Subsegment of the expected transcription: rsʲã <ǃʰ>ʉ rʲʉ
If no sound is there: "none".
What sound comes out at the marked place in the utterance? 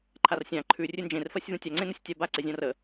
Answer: ǃʰ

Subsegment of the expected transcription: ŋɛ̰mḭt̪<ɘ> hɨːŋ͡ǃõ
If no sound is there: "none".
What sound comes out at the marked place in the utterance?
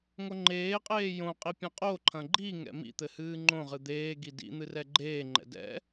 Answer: ɘ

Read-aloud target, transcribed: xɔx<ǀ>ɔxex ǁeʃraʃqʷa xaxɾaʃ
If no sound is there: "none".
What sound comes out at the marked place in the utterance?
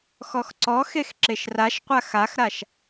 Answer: ǀ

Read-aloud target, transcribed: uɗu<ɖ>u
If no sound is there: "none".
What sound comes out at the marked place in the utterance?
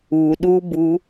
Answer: b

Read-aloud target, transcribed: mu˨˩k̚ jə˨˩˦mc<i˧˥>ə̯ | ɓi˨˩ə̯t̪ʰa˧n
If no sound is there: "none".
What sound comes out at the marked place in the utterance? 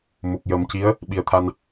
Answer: i˧˥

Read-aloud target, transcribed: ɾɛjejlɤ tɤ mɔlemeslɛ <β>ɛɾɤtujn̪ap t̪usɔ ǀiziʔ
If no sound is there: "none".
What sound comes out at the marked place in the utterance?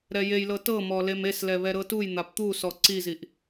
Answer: β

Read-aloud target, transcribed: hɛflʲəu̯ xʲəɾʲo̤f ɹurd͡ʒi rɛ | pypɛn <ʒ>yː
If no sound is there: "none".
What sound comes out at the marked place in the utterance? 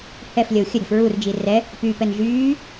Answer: ʒ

